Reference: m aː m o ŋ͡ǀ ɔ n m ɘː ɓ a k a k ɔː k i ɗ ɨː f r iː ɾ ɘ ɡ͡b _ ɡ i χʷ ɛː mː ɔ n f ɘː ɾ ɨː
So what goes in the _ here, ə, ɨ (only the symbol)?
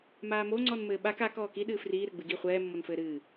ɨ